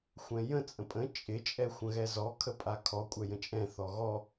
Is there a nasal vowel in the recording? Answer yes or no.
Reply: yes